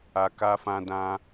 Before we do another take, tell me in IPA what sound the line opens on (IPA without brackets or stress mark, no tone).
a